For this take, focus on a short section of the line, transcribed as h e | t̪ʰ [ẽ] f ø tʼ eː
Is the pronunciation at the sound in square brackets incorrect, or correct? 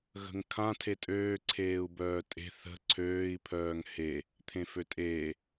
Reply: correct